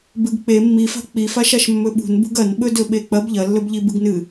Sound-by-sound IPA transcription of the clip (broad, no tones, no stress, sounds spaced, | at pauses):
b ɨ ɡ k͡p e mː i f a̤ k͡p i f a ʃ a ʃ mː ɵ ɓ ṳ n b ṳ ɡ ɐ n ɓ ɵ d ɵ ɓ e k͡p ɐ b ʎ ɐ lː ɵ b ʎ i b ɨ ɡ n ɨ